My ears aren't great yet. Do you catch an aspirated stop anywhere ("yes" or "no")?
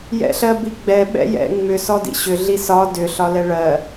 no